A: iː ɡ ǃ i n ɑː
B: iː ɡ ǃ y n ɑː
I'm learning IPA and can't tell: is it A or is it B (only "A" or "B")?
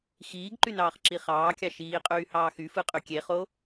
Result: B